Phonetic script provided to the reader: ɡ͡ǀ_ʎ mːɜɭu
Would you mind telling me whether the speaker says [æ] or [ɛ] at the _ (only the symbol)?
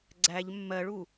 æ